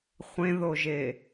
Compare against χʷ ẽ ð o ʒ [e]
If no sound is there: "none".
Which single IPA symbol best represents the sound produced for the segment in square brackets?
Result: e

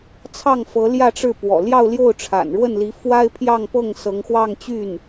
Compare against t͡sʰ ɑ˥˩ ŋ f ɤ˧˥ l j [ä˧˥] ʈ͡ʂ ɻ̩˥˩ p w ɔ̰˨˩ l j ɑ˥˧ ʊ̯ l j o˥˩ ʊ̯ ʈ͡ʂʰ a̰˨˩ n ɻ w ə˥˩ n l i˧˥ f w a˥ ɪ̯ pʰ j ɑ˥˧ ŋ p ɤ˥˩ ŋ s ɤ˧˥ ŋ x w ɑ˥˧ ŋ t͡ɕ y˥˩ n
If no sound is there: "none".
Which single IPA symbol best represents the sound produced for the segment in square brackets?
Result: ä˥˧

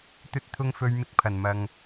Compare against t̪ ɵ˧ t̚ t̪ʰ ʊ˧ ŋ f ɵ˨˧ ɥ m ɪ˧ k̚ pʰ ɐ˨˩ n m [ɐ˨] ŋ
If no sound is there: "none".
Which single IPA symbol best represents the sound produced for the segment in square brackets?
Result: ɐ˨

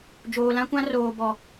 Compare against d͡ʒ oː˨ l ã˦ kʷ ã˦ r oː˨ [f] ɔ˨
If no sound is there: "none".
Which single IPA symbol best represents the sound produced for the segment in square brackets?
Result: b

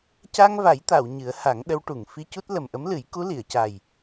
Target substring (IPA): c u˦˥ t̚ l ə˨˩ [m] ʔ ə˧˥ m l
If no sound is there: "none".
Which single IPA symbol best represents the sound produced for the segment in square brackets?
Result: m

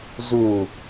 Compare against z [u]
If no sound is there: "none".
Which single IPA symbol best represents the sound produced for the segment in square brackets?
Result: u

